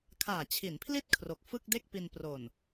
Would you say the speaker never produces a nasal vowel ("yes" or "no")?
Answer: yes